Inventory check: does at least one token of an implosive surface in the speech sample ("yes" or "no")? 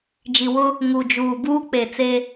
no